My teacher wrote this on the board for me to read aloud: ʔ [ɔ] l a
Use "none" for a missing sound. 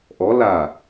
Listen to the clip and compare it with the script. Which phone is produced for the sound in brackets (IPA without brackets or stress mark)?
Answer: ɔ